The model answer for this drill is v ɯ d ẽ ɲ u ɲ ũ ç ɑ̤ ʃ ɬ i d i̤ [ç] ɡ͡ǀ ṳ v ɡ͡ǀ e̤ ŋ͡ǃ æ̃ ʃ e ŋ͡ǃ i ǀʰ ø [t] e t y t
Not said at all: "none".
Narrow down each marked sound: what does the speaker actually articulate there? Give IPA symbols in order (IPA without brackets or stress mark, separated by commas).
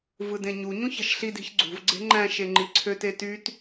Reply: ç, t